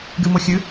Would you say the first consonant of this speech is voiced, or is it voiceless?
voiced